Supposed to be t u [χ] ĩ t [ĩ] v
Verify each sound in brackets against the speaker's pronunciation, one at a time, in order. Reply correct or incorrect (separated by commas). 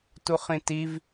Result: correct, incorrect